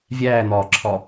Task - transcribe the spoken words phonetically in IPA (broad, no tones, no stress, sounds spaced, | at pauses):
vʲ æː n̪ ɒː ǁʰ ɒ